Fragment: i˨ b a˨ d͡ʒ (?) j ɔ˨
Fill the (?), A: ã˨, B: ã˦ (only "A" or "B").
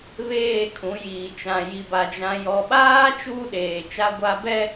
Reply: A